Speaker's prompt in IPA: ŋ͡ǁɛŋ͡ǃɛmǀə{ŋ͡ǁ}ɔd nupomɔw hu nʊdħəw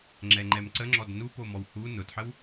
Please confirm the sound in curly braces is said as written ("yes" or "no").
yes